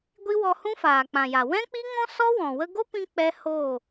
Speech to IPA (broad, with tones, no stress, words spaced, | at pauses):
ɡʷi˦wɔ˧ hũ˦faː˨k͡pã˨ja˨ wɛ̃˦k͡pi˦ŋɔ̃˦ sɔ˦wɔ̃˨ wə˧ɡo˦pĩ˧ k͡pɛ˧ hoː˦˨